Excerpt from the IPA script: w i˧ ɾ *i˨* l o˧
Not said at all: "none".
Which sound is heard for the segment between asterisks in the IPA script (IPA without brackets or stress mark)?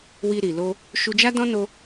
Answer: i˨